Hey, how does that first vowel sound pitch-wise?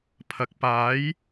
low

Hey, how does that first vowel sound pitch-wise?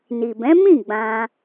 low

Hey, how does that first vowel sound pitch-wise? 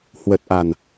low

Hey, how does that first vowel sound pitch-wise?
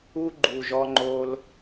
high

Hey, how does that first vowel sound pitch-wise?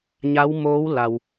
rising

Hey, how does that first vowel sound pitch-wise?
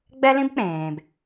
high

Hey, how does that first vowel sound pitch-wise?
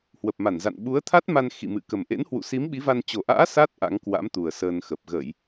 low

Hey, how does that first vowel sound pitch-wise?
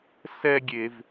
high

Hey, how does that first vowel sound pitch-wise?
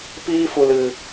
high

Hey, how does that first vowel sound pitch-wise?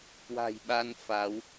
low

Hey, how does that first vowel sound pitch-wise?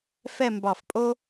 falling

